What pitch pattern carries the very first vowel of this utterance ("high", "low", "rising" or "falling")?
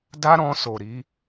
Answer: high